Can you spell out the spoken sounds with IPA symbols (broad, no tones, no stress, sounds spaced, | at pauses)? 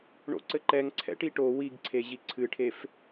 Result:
ɳ o̰ ǀ ɘ ǃ ɛ ŋ ǀʰ ɛ̰ ʈ i ʈ o w i ɡ ǀʰ e ʑ i ǀʰ ɨ ʈʰ e f